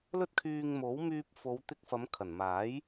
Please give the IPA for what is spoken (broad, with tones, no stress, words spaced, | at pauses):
lɵ˥t̚kʰyː˧ŋmo˨˥w myː˧p̚ fo˨˧wt̪ɪ˧k̚ fɐ˨˧mkʰɐ˨˩nmaː˨˥j